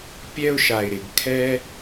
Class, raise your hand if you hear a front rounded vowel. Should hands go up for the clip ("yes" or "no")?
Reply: no